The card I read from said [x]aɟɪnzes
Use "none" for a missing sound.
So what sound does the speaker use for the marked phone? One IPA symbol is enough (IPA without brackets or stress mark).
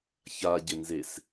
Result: ç